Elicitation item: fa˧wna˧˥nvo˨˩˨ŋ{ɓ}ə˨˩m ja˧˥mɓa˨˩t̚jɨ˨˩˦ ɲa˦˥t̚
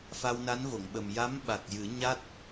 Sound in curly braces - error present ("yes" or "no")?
no